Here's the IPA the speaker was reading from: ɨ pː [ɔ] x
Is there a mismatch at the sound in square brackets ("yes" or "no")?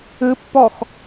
no